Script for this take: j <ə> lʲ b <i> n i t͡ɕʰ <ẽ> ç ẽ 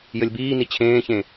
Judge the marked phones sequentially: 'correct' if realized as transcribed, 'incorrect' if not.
correct, incorrect: iː, incorrect: ẽː

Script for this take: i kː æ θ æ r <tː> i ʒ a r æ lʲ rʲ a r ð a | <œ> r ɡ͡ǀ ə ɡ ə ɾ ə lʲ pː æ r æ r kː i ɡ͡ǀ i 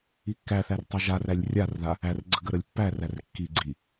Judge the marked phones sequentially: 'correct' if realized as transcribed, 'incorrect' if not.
incorrect: tˤ, incorrect: æ

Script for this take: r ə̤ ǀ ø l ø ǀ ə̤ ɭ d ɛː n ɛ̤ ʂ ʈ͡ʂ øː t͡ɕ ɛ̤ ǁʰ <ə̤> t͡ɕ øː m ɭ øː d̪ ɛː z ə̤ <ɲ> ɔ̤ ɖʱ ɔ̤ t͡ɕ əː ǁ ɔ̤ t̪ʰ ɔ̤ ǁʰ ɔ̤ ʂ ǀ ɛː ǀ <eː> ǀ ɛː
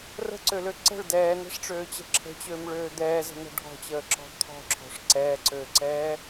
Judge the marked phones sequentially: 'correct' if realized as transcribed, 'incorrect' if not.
correct, incorrect: n̪, incorrect: øː

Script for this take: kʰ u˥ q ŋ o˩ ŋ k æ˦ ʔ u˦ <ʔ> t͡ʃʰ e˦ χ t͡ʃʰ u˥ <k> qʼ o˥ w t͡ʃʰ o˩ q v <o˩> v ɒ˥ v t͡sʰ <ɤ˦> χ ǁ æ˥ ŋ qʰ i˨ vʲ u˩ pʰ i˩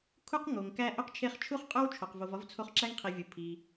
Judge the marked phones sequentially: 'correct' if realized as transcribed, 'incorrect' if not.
incorrect: q, incorrect: χ, incorrect: o˨, incorrect: o˦

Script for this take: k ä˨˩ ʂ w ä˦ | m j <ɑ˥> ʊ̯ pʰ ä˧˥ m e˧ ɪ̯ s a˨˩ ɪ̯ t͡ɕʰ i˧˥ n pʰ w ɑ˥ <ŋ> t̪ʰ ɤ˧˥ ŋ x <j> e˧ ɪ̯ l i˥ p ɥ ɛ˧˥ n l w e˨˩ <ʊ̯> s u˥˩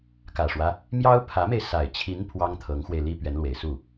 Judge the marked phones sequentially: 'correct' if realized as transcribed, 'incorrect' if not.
correct, correct, incorrect: w, incorrect: ɪ̯

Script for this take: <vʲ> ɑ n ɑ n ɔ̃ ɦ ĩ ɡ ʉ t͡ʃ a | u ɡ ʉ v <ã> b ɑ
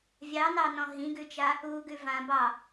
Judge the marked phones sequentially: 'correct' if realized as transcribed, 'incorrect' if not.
correct, correct

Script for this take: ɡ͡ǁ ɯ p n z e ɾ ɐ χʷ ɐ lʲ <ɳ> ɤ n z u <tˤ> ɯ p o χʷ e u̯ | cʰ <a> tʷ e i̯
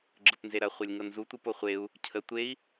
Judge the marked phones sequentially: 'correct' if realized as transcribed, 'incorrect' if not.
incorrect: ŋ, incorrect: tʷ, incorrect: ə

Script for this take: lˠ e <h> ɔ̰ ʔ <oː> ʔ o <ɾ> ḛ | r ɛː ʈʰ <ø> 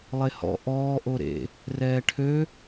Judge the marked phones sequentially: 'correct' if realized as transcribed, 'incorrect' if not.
correct, incorrect: ɔː, correct, correct

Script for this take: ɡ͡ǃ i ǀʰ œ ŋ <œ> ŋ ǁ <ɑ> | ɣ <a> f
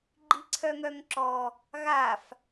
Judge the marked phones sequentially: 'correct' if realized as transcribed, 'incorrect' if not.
correct, incorrect: ɔ, correct

